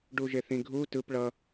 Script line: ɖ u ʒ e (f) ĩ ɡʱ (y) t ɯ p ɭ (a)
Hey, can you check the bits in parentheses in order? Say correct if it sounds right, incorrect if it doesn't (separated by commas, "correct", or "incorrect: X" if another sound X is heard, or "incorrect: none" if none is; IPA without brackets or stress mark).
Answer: incorrect: θ, incorrect: u, incorrect: ʌ